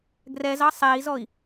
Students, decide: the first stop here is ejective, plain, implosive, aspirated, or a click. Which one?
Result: plain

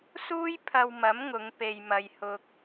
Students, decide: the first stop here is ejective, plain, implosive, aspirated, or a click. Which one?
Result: aspirated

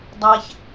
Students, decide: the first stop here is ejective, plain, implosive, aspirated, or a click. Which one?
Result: plain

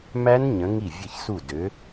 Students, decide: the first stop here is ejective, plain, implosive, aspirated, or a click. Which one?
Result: plain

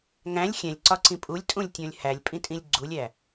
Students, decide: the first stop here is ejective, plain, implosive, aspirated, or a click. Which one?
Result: click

